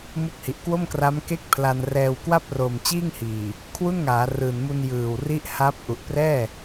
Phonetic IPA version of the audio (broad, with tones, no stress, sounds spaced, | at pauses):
m u˦˥ k̚ h i˨˩ ʔ k w o˥˩ m k r a˦˥ m k e˦˥ k̚ pʰ l a˧ n r ɛː˧ w k w a˥˩ p̚ r oː˨˩ m t͡ɕ iː˥˩ ŋ h iː˨˩ | kʰ w u˥˩ n ŋ aː˩˦ r ɯː˨˩ n m u˧ n j ɯː˨˩ w r i˦˥ ʔ h a˦˥ p̚ ʔ u˨˩ ʔ p r ɛː˥˩